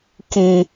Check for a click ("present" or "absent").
absent